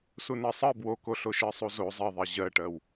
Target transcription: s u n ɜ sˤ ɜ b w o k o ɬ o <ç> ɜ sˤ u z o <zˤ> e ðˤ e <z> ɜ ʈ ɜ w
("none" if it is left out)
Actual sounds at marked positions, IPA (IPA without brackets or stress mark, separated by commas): ʃ, zˤ, ʑ